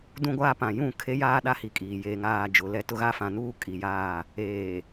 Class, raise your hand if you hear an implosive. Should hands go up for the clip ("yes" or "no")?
yes